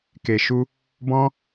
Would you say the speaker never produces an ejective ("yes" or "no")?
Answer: yes